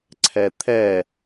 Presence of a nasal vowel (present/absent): absent